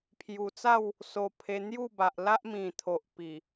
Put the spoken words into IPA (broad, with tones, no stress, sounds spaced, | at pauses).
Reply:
pʰ j u˨˩ t͡s a˥˧ w | s o˨˩ pʰ e˧ n̪ j u˥˧ b a˨ ʔ l a˦ ʔ m ĩ˨˩ t̪ʰ o˨ ʔ p i˨˩